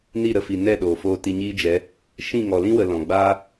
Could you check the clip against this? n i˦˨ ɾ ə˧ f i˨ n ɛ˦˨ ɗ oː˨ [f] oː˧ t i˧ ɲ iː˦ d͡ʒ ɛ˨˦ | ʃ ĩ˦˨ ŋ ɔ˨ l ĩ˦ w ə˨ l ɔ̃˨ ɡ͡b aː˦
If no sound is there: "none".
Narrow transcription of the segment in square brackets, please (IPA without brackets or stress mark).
f